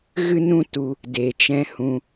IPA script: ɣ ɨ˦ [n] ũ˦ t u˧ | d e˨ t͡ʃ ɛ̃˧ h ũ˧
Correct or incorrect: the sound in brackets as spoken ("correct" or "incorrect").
correct